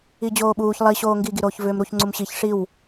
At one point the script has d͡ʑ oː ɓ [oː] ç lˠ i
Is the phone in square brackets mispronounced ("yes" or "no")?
yes